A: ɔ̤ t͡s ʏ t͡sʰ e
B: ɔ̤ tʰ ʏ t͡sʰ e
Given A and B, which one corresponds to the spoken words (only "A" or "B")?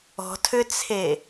B